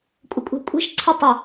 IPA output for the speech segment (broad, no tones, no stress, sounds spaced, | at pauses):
kʷʼ ə kʷʼ ɛ̤ kʷʼ ɛ̤ ʃ ǀʰ ʊ tˤ ɪ